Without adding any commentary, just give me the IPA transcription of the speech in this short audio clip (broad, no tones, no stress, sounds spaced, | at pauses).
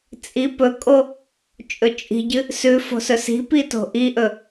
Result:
t͡sʼ i p ɵ kʼ o | t͡ʃʼ ɵ t͡ʃʼ i̤ ɟ ɨ | s ʉ f o̤ s ɵ s i̤ p i t o̤ ʔ i ʔ ɵ